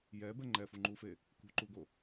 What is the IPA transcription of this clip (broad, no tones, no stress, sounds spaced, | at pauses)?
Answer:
j ɛ b ɛ ŋ͡ǃ ɛ f u ŋ͡ǃ u f e | k ṳ ǃ u ɡ o